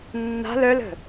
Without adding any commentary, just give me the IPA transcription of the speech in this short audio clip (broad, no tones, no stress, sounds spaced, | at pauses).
nː a̤ l œ l ə̤